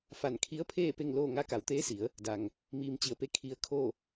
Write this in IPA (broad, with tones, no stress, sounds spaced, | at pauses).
f a˧˩ n kʰ i˧˥ ə̯ pʰ eː˥˨ p e˥˨ ŋ l oː˥˨ ŋ a˧˥ k a˩˧ w t̪ eː˧˥ s i˩˧ ə̯ | d a˩ ŋ | m iː˧ m t͡ɕ i˧˩ ə̯ p e˥˨ kʰ i˧ ə̯ kʰ o˥˨